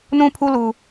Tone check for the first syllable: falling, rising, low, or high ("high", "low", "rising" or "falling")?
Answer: high